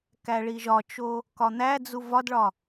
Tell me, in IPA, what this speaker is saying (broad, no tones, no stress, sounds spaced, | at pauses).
k æ ɭ i ʒ ɒ t͡ʃ o | k ɒ n̪ æ d͡z u v ɒ d ɭ ɒ